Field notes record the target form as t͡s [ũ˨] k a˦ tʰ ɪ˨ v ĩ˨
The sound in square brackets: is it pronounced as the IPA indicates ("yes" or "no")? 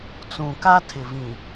yes